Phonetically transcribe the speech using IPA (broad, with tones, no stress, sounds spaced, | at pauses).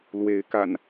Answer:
l w e˨˦ ɪ̯ k a̰˨˩ n